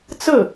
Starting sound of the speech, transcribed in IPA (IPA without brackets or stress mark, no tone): t͡s